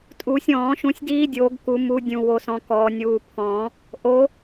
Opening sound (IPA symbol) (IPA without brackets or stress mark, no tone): tʼ